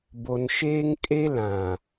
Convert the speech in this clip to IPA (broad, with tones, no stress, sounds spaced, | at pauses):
b o˨ n ʃ eː˦ ŋ kʼ e˦ l ã˨